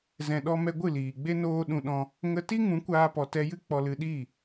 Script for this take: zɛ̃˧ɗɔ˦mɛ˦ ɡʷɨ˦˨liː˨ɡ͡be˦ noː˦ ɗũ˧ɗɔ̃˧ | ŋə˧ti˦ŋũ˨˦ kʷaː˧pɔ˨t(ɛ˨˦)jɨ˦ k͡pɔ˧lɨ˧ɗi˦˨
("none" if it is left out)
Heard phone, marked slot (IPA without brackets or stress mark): ɛ˧